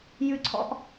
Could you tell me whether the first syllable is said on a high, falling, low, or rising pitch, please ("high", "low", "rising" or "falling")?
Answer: high